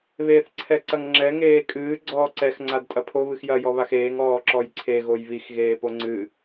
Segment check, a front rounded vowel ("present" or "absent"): absent